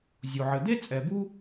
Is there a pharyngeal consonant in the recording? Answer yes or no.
yes